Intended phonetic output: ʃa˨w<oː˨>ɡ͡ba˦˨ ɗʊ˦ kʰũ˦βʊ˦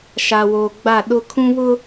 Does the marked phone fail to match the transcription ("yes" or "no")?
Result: no